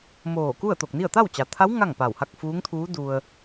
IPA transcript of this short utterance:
m oː˧˩ k u˥˨ ə̯ t̪ o˧˩ k̚ n i˥˨ ə̯ t̪ a˥˨ w t͡ɕ a˩ t̪ʰ a˧˥ w ŋ a˥˨ ŋ p a˧˩ w h a˥˨ k̚ f uː˧˥ ŋ t̪ʰ uː˧˥ d u˧ ə̯

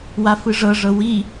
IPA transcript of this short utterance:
w a f ɯ ʐ ɤ ʐ ɤ w i

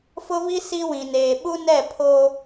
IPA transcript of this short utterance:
f ʊ˦ β i˦ s i˦ w ĩ˨ n eː˨ ɓ u˦ n ɛ˦˨ pʰ oː˦

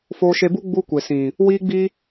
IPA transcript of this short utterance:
f oː˧ ʃ e˧ b u˦ ɡ͡b u˦ kʷ e˨ s ĩ˨ | w iː˦ ɡ͡b i˦

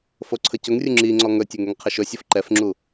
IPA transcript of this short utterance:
f o ǀʰ ə c ɵ ŋ rʲ u ŋ͡ǁ i ŋ͡ǀ ɔ ŋ ɵ tʲ ɵ ŋ ɛ ŋ qʰ ə ʃ ɵ sʲ ɤ f ǃ ɛ f ŋ͡ǁ u

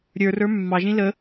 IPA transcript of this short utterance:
ɾʲ ə˞ r ə˞ mː ɑ ʒ ĩ l ə

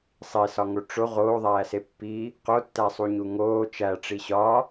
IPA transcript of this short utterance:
sˤ i s ɒ ŋ o ʈ͡ʂ o ʁ oː ðˤ æː s e pː i | q o tː æ sˤ u ɲ u ŋ oː t͡ʃ æ ʈ͡ʂ i ɕ ɒ

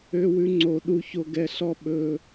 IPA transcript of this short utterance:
ø˥ w ʉ˥ ŋ͡ǀ o˦ ɗ u˥ ç o˦ ɡ ɛ˦ ɬ ɔ˥ ɓ ɵ˦

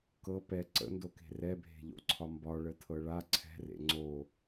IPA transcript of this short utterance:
k ɤ p ɛ ǀ ə̰ n d o k e̤ r ɛ bʱ e̤ ʎ o̰ ǀʰ ɒ m b ɒ ɭ ə tʰ ɤ ɭ a ǀʰ ɛ̤ r ḛ ŋ͡ǀ o

